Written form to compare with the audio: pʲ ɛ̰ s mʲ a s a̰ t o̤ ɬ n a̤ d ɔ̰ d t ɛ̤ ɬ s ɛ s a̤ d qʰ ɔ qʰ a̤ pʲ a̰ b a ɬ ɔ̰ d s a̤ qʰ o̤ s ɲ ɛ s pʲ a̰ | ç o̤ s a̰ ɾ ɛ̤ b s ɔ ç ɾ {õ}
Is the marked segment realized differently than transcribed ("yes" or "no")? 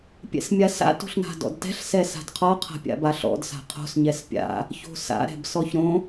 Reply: no